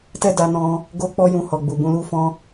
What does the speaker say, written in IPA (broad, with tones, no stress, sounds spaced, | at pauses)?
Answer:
t ɛ˦ d a˧ n ɔ̃˧ | ɡ o˦ k͡p ɔ˦ j ũ˧ h ɔ˨ ɡ͡b u˨ b ũ˧ l u˦ f ɔ̃˦